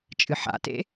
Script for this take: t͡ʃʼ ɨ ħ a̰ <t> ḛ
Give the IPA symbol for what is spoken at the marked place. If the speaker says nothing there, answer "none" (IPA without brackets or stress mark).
t